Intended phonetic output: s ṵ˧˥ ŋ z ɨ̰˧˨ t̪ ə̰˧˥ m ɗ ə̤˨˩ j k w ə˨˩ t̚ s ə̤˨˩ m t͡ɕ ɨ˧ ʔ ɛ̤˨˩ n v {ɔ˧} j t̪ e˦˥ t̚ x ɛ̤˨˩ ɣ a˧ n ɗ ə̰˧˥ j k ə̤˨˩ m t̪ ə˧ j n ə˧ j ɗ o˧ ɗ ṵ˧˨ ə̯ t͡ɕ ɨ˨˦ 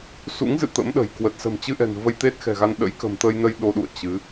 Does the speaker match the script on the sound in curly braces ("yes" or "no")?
no